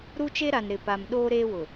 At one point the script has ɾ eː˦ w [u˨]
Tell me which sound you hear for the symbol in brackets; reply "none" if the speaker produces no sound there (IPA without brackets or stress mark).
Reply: ʊ˨